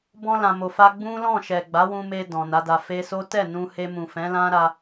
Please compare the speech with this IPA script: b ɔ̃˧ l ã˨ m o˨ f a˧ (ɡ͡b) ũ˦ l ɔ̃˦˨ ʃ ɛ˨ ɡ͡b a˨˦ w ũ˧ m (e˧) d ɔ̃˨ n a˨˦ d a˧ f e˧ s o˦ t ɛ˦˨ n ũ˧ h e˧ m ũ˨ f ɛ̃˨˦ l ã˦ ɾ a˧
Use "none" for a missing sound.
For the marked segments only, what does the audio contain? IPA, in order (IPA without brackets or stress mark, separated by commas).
ɡ͡b, e˧